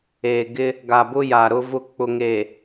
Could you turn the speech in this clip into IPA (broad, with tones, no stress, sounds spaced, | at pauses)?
eː˨ ɡ ɪ˦ | ɡ a˨ b ʊ˦ j a˨ ɾ ʊ˦ v ʊ˦˨ k͡p ʊ˨ ŋ e˨